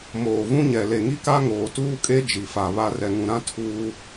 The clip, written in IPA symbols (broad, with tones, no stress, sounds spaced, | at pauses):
m oː˨ v ũ˦ ɲ ɛ˨ l e˨ ŋ i˦ k a˦ ŋ oː˨ t uː˦ kʼ e˦ d͡ʒ i˨ f a˨ β a˦ r ɛ˨ ŋ ũ˨ ɾ ã˦ tʰ uː˦